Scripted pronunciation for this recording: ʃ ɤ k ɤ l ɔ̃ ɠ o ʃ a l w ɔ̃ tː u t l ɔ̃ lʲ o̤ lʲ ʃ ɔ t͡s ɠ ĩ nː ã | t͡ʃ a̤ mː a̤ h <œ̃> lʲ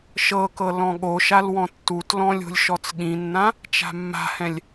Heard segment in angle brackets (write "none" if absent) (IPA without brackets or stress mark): ɛ̃